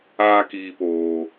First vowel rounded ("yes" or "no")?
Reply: no